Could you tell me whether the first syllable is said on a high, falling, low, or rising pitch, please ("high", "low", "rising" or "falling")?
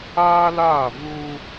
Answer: high